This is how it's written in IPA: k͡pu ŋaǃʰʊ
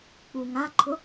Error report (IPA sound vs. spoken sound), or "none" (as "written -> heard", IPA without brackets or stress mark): none